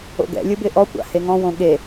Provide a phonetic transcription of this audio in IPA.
o̰ ɡ ɛ̰ lʲ ɯ b ɪ ʔ ɔ kʷ a̰ h e ŋ ɔ̃ w õ ɠ e

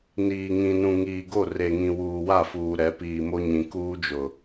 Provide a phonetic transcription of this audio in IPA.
n iː˨ ŋ ĩ˨ n ũ˨ ŋ iː˨ ɡ o˦˨ r e˨ ŋ ĩ˨ w uː˨ w a˦˨ f uː˨ ɾ ɛ˨˦ p iː˨ m o˦ ɲ ĩ˨ k uː˦ d͡ʒ ʊ˨

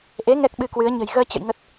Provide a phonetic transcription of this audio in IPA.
ʔ e˨˦ ŋ ɛ˦˥ k̚ ɓ ɨ˧ k w ɨ˨˦ ə̯ ɲ ə̤˨˩ j ɣ əː˧ t͡ɕ ə̰˧˨ j ŋ ə˨˩ t̚

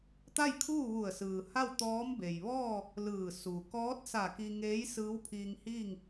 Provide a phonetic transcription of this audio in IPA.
t̪ a˥˨ j kʰ uː˥˨ ʋ u˧˩ ə̯ s ɯː˩ h a˥˨ w t̪ ɔː˧˥ m b e˩ j ʋ ɔː˥˨ | l ɯː˧˩ s u˩ k ɔː˧˥ t̚ s a˧˩ k i˧ ŋ eː˧˥ j s ɯː˧˥ w pʰ iː˧ ŋ h iː˥˨ ŋ

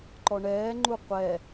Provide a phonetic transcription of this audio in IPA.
ǃ ɔ ɳ ɛː ŋ͡ǃ u qʷ ɛ

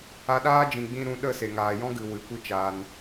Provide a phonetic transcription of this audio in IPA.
a˧ ɗ aː˦ d͡ʒ ĩ˨ ɡ͡b ĩ˧ ɾ ũ˧ ɗ ə˦˨ s e˨ ŋ aː˨ j ɔ̃˦ ɡ ɨ˨ w ɨ˨ kʷ i˦ t͡ʃ aː˧ n

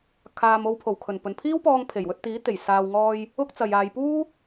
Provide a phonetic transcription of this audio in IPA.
kʰ aː˨ m o˧ w pʰ o˨˩ w kʰ ɵ˨˩ n p ɵ˨ n pʰ iː˥ w p ɔː˧ ŋ pʰ e˨˩ j w ɵ˧ t̚ t̪ iː˨˥ t̪ e˨˩ j s aː˨ w ŋ ɔː˧ j | ʊ˥ k̚ t͡s ɐ˨ j aː˨ j p uː˥

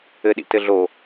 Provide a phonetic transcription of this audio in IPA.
ɘ ɗ ḭ t ɘ ɮ o

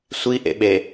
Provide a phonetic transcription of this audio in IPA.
sʷ i ʔ ḛ ɓ e

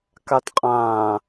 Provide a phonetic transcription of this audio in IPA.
k a t qʼ ãː

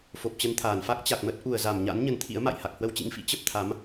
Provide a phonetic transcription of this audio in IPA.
f o˨˩ p̚ t͡ɕ ə˧ n t̪ʰ aː˧˩ n f a˦˥ k̚ t͡ɕ a˨˩ k̚ m ə˦˥ t̚ ʔ u˨˩ ə̯ z a˧˩ m ɲ a̰˧˥ n ɲ ə˧ n t̪ʰ ḭ˧˥ ə̯ m a̰˧˨ j h a˨˩ k̚ h w ə˧ w t͡ɕ ḭ˧˥ ŋ f ḭ˧˥ t͡ɕ ə˦˥ p̚ t̪ʰ a˨˦ m

